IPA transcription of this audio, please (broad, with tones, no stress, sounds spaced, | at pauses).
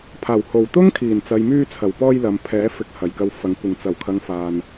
pʰ aː˨˩ w h o˨˩ w t̪ ʊ˥ ŋ kʰ iː˨˩ n t͡s ɐ˨ j m yː˧ t͡sʰ ɐ˨˩ w p ɔː˧ j l ɐ˨ m pʰ ɛː˨˥ f ɪ˨˥ k̚ h ɐ˨˩ j k ɐ˧ w f ɐ˨˥ ŋ kʷ ɪ˨˩ ŋ t͡s ɐ˨˩ w kʰ ɐ˨ ŋ f aː˧ n